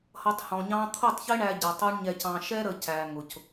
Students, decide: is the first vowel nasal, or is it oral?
oral